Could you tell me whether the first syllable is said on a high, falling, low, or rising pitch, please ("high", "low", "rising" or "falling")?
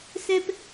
low